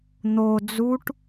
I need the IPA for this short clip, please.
n̪o d͡zuʈ

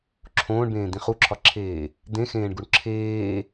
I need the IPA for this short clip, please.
ǁʰõːɳbẽːd̪ĩ χuǁʰɒǁʰeː | d̪ẽxẽːɳɡuɳ ǁʰeː

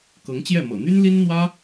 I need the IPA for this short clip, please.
kɤ˧˥ŋt͡ɕjɛ˥˩ mɤ̰˨˩n̪y˥n li˥nn̪wä˥

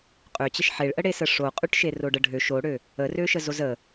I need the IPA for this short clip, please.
qʼøt͡ɕəʃ ħeɭʔəɽesə ʂoqʼyʈʃe roɖəɖʱø ʃoɽø | ərøʃə zozə

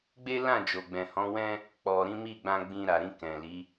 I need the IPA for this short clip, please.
ɡ͡be˦lã˦˨d͡ʒo˨ ɡ͡bɛ̃˨hɔ̃˨˦wɛ̃˦ | k͡pɔ˨ɾĩ˨˦ mi˦˨ɡ͡bã˧ ɡ͡bĩ˧ɾa˨ɾĩ˧ kɛ̃˨li˨˦

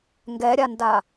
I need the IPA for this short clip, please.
ŋɡɛɾʲanda

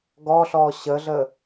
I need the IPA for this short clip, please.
ɡɔɬɔ ɕəɮə

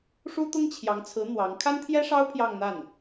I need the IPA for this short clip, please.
ʂu˥t̪ʊ˥ŋt͡ɕʰjɑ˧˥ŋt͡sʰɹ̩˧˥ n̪wɑ˧˥ŋ kʰa˥nt̪ʰjɛ˥ʂɑ˥ʊ̯ pʰjɑ˥˧ŋn̪a˥˩n

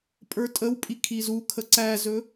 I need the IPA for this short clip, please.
pʼə˞tʼəwpʼi kʰizukʰə ǀæzɵ

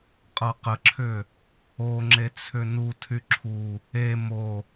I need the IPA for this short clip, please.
qʼɤqəǁʰʏ | oŋ͡ǁet͡sʰʏ nu tʰyǁʰu | e mo

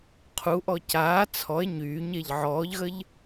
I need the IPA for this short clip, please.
qʰuʔɔ caː t͡sʰɔe̯ ɲyːɲeʎ ʕɔːʎɣəʎ

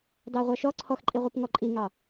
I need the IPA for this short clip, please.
dɑʁʷɑʃɔ ǀʰɔxǃʼiʁʷip ŋɔǃʼiŋɑ

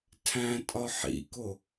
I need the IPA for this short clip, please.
tʰæ̃tʼɒ ħḭko

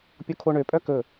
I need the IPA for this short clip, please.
pʲokʰoɳøpʼœ kɵ

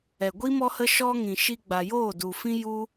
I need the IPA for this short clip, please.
ɛ˨ɡʷi˦ mɔ˧hə˧ʃɔ˧ ŋĩ˨ ʃi˧ɡ͡ba˨joː˦˨du˨ fĩ˦ju˦

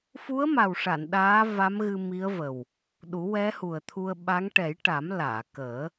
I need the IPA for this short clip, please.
fu˧˥ə̯ma˨˩wʂa˨˩˨n ɗaː˧˥ va˧˥mɣɨ˧mi˧˥ə̯ və˨˩w | ɗu˨˩˦wɛ˧˥hu˨˩ə̯t̪ʰu˧ə̯ ɓa˧˥ŋ ʈɛ˨˩˦j ʈa˨˩˦mlaː˨˩˨kəː˨˩˦

